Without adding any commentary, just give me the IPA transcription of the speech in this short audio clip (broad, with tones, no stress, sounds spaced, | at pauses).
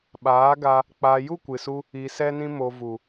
ɓ aː˨˦ ɡ a˧ | k͡p a˧ j u˦˨ kʷ ɨ˨ s u˧ | i˧ s ɛ˦ n ĩ˦ m o˧ v u˨